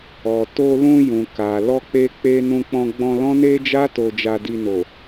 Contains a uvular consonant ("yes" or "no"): no